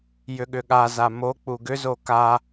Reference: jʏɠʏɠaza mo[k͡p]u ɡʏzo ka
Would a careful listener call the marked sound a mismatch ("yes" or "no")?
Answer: no